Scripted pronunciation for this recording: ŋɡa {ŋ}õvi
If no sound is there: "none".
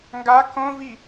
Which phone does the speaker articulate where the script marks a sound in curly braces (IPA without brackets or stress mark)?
k